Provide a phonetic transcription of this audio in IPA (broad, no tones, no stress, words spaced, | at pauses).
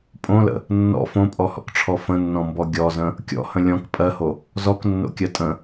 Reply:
pʼõlə̰ | nːɔ̰ fõpʼɔhɔ̰kʈ͡ʂʰɔ fə̃nːɔ̃mbɔ ɡʲɔzə̃ | kʲɔ̰hə̃ lʲɔ̃k pʼɜho | zɔknːo̰kʲɜ tʼə̃